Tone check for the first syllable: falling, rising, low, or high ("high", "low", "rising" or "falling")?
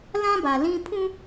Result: high